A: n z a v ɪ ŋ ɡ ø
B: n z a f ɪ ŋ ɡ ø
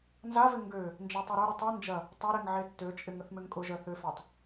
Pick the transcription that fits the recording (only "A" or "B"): A